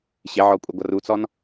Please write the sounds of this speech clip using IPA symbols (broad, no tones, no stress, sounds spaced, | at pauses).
ɕ ɪ ʕ ɔ kʷʼ ɪ ɡʷ ʌ r u t͡s ɔ n